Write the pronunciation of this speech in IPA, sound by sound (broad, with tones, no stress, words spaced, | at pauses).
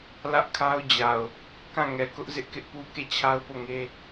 lä˦ʔkʰa˦ʊ̯d͡ʑa˨ʊ̯ | kã˦˨ŋɛ˨kʊ˦ʔ zɪ˦ʔkɪ˦ʔpu˦ ke˦˨t͡ɕʰa˦ʊ̯po˦˨ŋe˦